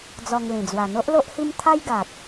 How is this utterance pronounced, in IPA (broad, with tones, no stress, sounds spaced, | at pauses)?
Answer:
d͡z ɔ˧ ŋ l ĩ˨˩ d͡z w a˨˩ n̪ o˦ ʔ l o˦ ʔ h i˦ m t̪ʰ a˦ j ɡ a˨ t̚